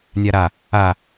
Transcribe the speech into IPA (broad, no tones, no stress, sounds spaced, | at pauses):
nʲ a ɾ a | a